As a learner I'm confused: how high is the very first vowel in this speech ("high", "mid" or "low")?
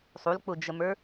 high